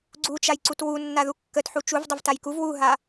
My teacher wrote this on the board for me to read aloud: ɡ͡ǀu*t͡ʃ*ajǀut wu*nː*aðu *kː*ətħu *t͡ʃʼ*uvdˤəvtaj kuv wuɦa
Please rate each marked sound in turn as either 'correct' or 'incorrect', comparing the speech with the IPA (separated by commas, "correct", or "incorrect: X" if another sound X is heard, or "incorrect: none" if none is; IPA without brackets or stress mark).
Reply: correct, correct, correct, incorrect: t͡ʃ